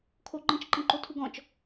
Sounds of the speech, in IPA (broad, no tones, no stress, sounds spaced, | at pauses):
kʰ o ɡ͡ǃ ə̃ t͡ʃ ǃ ə̃ ǃ o tʰ u ɡ ɔ̃ t͡ʃ